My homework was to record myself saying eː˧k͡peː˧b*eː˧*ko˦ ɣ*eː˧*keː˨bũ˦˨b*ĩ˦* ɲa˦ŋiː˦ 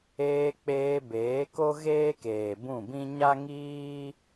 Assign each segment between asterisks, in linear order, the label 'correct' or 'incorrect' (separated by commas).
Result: incorrect, incorrect, correct